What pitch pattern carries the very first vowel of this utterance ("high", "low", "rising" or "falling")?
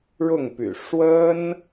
falling